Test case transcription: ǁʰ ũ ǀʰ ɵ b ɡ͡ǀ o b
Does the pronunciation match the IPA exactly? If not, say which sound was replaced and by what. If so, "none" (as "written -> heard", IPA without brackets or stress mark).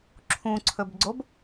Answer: none